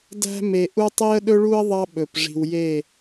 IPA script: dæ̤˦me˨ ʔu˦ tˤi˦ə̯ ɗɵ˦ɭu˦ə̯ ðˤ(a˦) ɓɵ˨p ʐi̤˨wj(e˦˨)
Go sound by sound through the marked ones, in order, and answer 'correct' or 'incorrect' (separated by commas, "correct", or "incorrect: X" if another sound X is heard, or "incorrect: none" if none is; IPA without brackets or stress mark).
incorrect: ɑ˦, correct